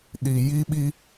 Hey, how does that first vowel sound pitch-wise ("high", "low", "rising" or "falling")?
low